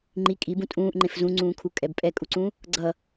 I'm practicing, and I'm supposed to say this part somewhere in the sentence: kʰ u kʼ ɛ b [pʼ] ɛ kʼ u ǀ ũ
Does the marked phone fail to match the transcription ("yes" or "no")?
no